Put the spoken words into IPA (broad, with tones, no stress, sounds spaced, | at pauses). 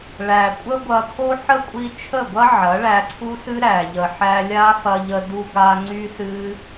ɭ æ˨ kʷʼ ə˦ ɡʷ ɐ˧ kʰ o˦ ħ ə˦ kʷʼ i˧ t͡ʃʰ ə˦˨ ɡʷ ɐ˦ ʕ ɐ˨˦ ɭ æ˧ ǀʰ u˦ s ɨ˦ ɾ æ˨ ʎ ə˨ ħ æ˧ lʲ a˦ f ɐ˧ ʎ ə˧ d u˧ ɡ a˧ ŋ͡ǀ y˦ s ɨ˦